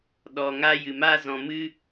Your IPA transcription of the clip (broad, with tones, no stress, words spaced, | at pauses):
ɗɔ˧ŋa˦jɨ˧ma˦ zɔ̃˧mɨ˦